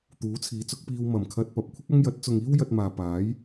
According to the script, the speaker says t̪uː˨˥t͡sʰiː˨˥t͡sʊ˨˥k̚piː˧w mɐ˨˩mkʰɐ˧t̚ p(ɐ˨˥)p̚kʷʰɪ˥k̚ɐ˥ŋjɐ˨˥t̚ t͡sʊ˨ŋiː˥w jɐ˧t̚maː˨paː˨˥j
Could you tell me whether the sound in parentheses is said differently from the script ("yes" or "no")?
no